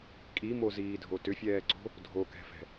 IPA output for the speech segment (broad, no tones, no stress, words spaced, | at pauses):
kʼimoziːdʱo tʏfʲɛːǀo̤ | dʱokɛ̤fɛ̤